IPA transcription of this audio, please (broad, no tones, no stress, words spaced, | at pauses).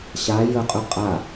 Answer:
ɕa jəqʼɵ qʼa